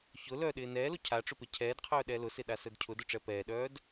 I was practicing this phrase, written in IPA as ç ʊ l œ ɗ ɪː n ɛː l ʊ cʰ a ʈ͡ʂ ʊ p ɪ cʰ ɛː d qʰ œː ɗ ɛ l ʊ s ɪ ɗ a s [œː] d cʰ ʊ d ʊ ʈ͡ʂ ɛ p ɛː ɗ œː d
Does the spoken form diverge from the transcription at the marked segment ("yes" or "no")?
yes